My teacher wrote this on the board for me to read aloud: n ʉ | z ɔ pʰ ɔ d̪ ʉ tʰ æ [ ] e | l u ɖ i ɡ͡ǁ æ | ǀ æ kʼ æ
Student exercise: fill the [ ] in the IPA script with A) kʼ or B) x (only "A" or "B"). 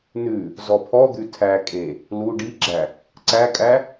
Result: A